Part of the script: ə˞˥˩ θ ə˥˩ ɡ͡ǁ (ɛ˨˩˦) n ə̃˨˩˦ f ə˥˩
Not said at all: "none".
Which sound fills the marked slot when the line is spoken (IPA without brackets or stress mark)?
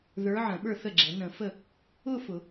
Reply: ɛ˨˩˦